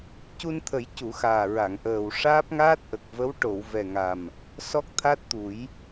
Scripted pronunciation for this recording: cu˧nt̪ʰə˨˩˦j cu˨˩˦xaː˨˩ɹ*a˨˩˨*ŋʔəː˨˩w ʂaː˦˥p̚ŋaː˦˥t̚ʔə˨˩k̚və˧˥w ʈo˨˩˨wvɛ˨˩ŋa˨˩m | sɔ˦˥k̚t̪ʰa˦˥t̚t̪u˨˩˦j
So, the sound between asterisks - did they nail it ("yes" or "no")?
yes